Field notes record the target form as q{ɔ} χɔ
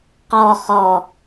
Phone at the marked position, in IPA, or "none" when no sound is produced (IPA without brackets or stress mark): ɔ